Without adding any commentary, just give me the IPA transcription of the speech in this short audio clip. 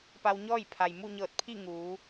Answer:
pa˧wɲɔː˥˨jpʰa˩j mu˥˨ɲɤː˧˩t̚pʰi˥˨ ŋuː˩˧

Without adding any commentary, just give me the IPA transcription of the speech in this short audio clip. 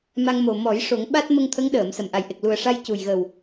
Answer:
ma˧ŋ mo˨˩ mɔ˨˩˦jʂo˨˩˦ŋ ɓa˦˥t̚mə˧ŋ t̪ʰə˧˥ŋɗəː˨˩˨m sə˨˩mʔa˨˩jʔe˨˩k̚ lu˨˩ə̯ʂa˧j cu˨˩jɣə˨˩w

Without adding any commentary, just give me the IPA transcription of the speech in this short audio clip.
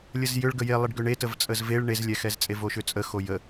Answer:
lʲəzjʏɭ ɡəje lˠəɖɡʏɳe təvt͡sʼəzveɭ ɳezlʲɛxɛzt͡sʼe voʃʏt͡sʼə xojə

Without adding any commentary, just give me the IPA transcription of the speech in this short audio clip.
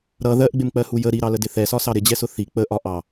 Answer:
ɾʌ ðɜʔɡ͡bɪmk͡pɜhu jə ɾiɾɑlədɪ θɛsɒsɑ ɾɪd͡ʑɛsʊ θi k͡pəʔɒ ʔɑ

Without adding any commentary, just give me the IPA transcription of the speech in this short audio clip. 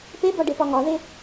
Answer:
pebɒɖepɒ ŋɒðe

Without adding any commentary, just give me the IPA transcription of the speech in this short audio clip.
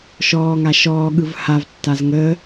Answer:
ʃɔː ŋaʃɔː ɠɯvhav tːazŋəː

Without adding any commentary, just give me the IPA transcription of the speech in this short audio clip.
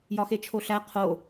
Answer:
jɒxet͡ʃʰoɬæ qʰo

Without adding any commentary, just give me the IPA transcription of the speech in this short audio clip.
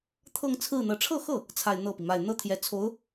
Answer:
t̪ʰɤ˥˧ŋt͡sʰɹ̩˥˩n̪ɤ˧˥ ʈ͡ʂʰɤ˥˧xɤ˥˩ | t͡sʰa˥˧ɪ̯n̪ɤ˥˩pi˩ma˥˩ɪ̯ n̪ɤ˥t̪ʰjɛ˧˥t͡sʰo˧˥ʊ̯

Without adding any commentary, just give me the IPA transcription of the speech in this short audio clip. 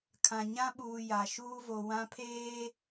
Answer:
kʰã˨ɲã˦ɓuː˨ ja˨ ʃuː˦vo˨ wã˦pʰeː˦

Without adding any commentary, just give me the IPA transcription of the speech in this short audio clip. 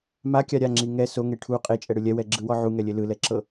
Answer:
makʲa ɾʲaŋ͡ǁi ŋɛ soŋe ʈʰu qʼet͡ʃʼɛɽɯ lʲɛwɛɡ͡ǁɯwɔ ʕuŋɛlʲe lɯlɛǁɤ

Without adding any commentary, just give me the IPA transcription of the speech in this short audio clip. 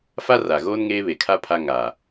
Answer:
fa˦ ra˨ɣoː˦n ŋeː˦ βe˨kʰa˦ pʰa˦ ŋaː˨

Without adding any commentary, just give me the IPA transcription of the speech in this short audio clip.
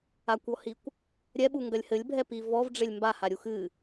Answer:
akʷɔhikʷ | ɾʲɛɓuŋɡɐlʲ hɘlʲbʱɛpi vɔvɖ͡ʐelʲ mbahaɾʲu xɨ

